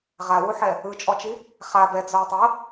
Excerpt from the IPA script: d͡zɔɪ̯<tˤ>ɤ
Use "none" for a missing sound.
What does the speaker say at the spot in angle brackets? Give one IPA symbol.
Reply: tˤ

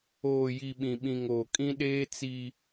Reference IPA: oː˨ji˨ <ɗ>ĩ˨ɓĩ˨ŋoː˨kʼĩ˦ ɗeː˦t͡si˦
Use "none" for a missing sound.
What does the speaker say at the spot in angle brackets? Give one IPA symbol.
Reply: ɓ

